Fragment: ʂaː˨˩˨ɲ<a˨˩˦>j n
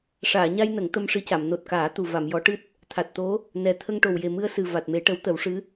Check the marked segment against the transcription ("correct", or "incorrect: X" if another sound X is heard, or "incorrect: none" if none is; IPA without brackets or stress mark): incorrect: a˧